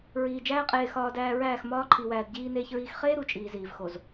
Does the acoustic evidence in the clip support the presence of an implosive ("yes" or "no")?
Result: no